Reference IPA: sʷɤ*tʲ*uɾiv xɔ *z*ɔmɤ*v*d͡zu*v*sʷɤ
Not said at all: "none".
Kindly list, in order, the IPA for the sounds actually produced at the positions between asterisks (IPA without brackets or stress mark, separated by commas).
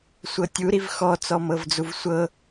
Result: tʲ, t͡s, v, v